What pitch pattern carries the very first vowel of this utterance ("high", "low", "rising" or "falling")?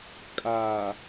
low